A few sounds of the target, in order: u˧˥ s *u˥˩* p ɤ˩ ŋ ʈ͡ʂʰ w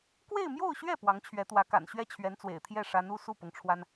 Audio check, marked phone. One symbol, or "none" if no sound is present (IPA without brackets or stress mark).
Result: u˥˩